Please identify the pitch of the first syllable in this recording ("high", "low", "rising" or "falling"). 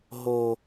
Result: low